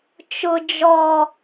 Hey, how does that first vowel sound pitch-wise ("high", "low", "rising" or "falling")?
high